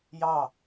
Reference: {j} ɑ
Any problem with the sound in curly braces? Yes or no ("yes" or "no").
no